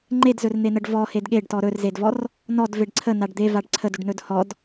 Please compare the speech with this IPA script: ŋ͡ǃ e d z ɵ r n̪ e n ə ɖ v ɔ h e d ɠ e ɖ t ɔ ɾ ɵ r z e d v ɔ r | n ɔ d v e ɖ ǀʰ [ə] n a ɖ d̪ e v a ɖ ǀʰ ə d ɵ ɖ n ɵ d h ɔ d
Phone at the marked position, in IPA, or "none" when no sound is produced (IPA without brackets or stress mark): ə